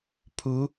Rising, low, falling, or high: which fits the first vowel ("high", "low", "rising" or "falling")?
rising